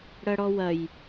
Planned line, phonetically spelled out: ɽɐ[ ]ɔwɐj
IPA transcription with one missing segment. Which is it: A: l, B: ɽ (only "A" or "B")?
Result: B